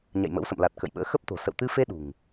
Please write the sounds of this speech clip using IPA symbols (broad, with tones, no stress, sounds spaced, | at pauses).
ɲ a̰˧˨ j m ə̰˧˥ w s ə̰˧˨ m l a˨˩ t̚ k ə̰˧˨ j ɓ ə̰ː˧˥ x ə˦˥ p̚ t̪ o̤˨˩ s ə̰˧˨ w t̪ ɨ˧ f e˧ ɗ ṳ˨˩ ŋ